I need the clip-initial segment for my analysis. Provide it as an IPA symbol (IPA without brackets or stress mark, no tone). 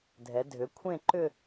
dʱ